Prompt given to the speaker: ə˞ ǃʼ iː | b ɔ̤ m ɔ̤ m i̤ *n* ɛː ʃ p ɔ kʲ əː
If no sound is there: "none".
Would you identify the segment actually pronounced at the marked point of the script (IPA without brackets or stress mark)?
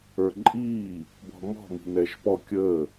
n